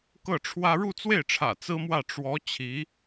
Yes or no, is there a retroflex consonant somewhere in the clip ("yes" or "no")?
yes